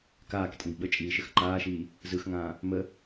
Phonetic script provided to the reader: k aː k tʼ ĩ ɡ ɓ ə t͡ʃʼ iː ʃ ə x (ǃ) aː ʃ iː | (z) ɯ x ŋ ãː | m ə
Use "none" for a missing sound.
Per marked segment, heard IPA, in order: ǃ, z

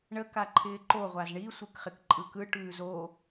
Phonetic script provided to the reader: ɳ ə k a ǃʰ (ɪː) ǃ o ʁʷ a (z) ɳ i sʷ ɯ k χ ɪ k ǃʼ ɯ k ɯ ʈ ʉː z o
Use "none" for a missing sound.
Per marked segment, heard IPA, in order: ɪː, z

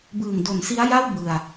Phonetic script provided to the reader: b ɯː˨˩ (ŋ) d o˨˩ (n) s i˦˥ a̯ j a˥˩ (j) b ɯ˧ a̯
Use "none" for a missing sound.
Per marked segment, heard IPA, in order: ŋ, n, w

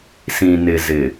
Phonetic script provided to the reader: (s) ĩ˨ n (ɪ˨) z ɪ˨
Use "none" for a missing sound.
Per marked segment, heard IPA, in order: s, ɪ˨

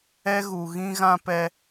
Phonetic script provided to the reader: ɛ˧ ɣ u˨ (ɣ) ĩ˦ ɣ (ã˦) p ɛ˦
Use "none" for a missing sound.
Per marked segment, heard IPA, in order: ɣ, ã˦

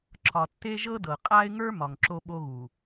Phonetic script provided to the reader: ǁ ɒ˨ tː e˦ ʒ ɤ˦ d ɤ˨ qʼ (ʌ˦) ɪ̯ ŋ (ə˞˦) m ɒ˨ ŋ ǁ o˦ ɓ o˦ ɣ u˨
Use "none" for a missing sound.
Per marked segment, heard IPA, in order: a˦, ə˞˦

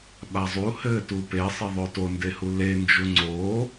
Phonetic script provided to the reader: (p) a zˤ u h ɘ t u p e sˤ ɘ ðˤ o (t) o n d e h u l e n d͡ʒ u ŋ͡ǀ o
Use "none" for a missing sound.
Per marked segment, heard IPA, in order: ɓ, t

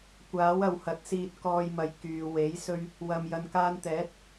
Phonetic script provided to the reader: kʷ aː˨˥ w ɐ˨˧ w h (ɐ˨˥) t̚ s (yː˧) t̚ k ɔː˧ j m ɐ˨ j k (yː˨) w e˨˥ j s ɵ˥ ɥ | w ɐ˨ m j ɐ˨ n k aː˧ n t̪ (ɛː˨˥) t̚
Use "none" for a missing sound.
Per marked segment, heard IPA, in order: ɐ˨˥, iː˧, yː˨, ɛː˨˥

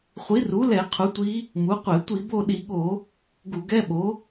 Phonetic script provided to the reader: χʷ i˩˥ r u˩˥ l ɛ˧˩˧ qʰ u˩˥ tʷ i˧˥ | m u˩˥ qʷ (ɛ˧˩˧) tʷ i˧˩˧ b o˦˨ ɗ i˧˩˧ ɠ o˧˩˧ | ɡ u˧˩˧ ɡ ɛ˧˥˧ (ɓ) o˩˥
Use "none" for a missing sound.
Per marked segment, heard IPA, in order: ɛ˧˩˧, ɓ

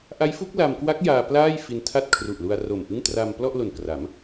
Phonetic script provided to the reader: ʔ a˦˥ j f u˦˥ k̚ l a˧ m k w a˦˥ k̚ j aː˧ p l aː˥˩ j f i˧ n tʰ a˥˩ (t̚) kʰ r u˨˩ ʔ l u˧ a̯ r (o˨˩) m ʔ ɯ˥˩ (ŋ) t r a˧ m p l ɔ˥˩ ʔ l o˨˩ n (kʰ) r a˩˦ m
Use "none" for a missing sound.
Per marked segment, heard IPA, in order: t̚, o˨˩, ŋ, k

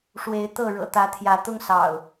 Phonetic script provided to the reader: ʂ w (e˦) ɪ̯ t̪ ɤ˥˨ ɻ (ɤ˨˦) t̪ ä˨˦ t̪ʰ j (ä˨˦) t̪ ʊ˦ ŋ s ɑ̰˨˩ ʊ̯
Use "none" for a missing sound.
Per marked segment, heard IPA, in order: e˨˦, ɤ̰˨˩, ä˨˦

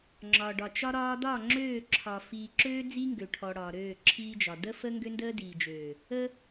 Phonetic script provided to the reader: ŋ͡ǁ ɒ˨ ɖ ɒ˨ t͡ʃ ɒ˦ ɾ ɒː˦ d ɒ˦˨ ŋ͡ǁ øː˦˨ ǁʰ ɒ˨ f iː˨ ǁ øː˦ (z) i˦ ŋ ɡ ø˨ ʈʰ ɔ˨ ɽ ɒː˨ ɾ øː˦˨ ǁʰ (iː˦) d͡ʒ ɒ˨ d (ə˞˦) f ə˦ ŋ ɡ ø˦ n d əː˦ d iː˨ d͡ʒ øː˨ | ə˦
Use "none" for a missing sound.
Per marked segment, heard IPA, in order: d͡z, iː˦, ə˦

